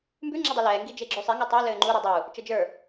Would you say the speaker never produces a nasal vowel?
yes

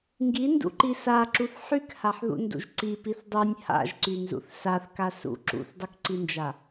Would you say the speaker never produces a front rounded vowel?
no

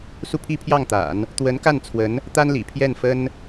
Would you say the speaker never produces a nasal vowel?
yes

